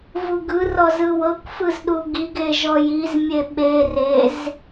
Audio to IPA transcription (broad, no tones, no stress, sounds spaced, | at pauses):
v u ɡ ɯ r ɔ z ɯ w ɤ kʷ f ɯ z ɗ u ɡ i ɡ e ʒ ɔ j i z mʲ e ɓ e r e z